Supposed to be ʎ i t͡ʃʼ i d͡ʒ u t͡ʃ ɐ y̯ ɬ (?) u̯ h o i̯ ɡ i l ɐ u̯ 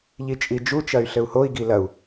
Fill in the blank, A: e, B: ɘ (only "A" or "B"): B